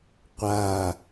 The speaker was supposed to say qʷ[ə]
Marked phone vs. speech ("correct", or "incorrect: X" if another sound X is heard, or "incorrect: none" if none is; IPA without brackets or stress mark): incorrect: a